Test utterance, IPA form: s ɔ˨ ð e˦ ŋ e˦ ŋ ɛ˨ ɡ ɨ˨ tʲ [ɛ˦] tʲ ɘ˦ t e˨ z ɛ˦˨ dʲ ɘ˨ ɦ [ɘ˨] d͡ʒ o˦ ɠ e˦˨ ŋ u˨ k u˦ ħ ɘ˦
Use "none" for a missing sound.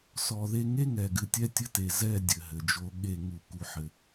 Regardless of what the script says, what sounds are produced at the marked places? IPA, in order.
ɛ˦, ɘ˨

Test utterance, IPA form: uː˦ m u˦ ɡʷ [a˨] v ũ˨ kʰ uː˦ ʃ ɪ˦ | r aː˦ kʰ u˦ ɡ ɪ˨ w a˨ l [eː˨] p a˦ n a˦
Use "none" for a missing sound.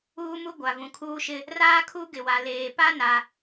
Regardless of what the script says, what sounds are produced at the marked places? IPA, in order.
a˨, eː˨

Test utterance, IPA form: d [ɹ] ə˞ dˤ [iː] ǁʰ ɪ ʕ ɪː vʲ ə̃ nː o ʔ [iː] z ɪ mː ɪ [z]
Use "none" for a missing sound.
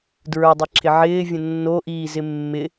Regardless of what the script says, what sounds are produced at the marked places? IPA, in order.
ɹ, i, iː, none

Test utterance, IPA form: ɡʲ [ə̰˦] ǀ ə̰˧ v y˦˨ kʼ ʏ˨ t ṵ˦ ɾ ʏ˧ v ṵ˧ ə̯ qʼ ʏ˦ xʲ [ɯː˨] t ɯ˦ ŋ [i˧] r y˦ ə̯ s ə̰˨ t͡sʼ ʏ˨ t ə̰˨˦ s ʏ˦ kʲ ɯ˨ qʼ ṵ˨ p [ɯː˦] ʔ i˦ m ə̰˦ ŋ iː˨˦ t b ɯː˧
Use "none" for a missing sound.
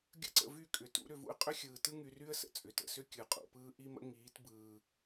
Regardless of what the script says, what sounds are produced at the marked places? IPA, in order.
ə̰˦, ɯː˨, y˧, ɯː˦

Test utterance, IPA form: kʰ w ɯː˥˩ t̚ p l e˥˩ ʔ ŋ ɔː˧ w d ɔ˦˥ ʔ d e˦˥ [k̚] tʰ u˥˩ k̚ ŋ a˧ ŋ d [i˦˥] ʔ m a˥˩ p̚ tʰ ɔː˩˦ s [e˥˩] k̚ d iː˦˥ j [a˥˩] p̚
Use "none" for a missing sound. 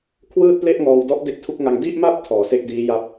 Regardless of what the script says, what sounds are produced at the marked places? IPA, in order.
k̚, i˥˩, e˥˩, a˥˩

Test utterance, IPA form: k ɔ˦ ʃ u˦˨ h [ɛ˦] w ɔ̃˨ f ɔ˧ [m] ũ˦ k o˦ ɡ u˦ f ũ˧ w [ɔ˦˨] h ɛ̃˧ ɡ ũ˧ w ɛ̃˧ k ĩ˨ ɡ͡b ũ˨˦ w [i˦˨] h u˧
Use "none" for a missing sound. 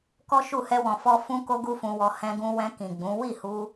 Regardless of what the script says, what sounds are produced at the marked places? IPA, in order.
ɛ˧, f, ɔ˧, i˦˨

